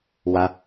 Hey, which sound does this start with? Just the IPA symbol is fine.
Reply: w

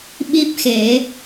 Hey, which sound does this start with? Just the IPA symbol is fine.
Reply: ɓ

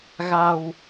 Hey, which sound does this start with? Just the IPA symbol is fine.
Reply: ɣ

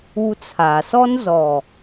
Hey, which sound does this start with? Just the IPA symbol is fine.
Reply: u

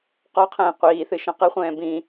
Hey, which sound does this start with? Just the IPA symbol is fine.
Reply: q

